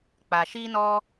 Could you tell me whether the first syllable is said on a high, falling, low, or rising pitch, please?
low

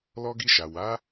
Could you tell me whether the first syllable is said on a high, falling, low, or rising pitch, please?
high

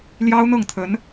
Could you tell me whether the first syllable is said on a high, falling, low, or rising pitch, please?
high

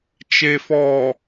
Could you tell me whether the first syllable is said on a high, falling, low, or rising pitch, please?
low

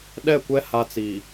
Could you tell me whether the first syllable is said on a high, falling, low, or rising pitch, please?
falling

